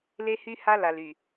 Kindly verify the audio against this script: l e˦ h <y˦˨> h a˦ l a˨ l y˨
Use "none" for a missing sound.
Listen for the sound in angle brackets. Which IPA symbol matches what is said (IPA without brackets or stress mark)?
y˦